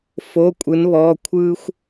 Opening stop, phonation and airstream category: ejective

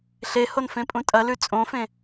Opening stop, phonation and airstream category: ejective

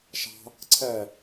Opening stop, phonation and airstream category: click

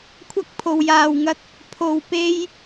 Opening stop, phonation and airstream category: aspirated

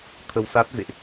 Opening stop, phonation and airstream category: aspirated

